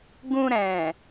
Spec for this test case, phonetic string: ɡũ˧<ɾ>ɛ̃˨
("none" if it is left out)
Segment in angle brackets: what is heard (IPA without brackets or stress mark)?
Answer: ɾ